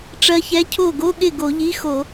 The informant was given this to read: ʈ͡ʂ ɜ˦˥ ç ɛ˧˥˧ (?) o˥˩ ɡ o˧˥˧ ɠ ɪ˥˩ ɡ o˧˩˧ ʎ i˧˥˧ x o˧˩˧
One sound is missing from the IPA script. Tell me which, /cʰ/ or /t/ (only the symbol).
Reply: cʰ